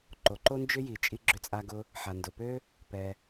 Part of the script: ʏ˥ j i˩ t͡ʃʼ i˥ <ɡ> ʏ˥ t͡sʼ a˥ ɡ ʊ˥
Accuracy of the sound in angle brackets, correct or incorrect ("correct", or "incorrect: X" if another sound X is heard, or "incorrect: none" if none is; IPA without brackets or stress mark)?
incorrect: ɡ͡ǁ